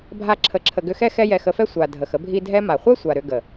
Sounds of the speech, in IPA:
bʱ a˦ ǁʰ ə˧ ǁʰ ə˧ ɡ ʏ˧ x ɛ˦ x ɛ˦ j ɛ˧ x ə˧ f ɛ˦ sʷ a˨ dʱ ə˨ x ə˦ bʱ i˦ dʱ ɛ˧ m a˨ χʷ ɛ˦ sʷ a˨ ɾ ʏ˧ ɡ ə˨

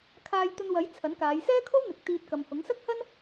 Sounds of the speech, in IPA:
kʰ aː˧ j t̪ ɵ˧ n w ɐ˨˥ j t͡sʰ ɐ˨˥ n k aː˨˧ j s ɛː˥ kʰ o˥ w n̪ ɪ˨ k̚ t̪ iː˧ t̚ k ɐ˨ m h ʊ˨˥ ŋ s ɐ˥ k̚ h ɐ˥ n

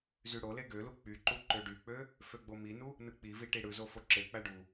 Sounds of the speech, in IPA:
z y ɽ o l e ɡ ø l u k͡p y ǃ u ǃ ø ɖ y k͡p ø | f ø ɡ͡b o m i n u | n ɯ k͡p i v i ʈ i ɽ ɯ z o f o ǁ e k͡p æ ɖ u

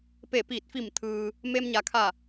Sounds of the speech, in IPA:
p e˧˩ p iː˧˩ t̚ f i˧˩ m t̪ʰ ɯː˩ | m e˧ m ɲ a˩ kʰ a˧˩

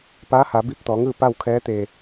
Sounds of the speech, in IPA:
p a˧˥ h a˩˧ b i˧˥ p̚ t̪ ɔː˩˧ ŋ ɯː˥˨ p a˥˨ w kʰ ɛː˧˥ t̪ eː˧˩

